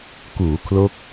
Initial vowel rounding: rounded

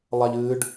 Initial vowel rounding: unrounded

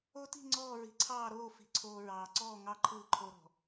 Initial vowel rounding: rounded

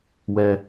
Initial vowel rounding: unrounded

